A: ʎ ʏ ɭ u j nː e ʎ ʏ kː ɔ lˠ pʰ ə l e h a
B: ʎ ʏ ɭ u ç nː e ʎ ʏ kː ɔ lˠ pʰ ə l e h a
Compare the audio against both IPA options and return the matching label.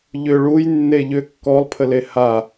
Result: A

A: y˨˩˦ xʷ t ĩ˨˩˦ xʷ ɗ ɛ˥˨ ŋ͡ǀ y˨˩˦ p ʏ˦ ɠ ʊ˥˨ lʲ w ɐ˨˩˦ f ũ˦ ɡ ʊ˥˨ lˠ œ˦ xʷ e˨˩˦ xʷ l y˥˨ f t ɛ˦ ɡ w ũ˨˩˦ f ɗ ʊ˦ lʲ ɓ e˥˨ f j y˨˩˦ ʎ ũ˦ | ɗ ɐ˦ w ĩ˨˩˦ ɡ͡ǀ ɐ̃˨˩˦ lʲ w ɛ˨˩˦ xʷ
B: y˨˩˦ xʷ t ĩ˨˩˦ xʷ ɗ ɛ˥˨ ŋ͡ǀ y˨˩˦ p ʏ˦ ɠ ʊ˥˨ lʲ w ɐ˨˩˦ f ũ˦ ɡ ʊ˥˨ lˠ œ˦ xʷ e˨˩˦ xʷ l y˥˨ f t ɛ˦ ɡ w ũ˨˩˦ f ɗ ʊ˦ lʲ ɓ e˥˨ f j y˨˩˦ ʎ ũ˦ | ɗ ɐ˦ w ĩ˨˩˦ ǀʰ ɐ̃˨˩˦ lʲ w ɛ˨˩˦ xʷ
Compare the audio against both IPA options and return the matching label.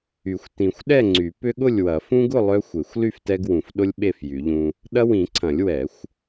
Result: B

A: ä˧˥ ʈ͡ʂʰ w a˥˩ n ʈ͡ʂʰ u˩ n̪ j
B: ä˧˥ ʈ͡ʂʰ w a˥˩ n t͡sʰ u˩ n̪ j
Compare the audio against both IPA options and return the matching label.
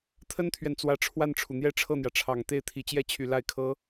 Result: A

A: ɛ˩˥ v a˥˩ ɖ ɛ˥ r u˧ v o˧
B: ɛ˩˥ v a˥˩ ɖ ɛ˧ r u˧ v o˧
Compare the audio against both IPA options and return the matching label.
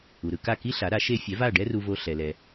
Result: A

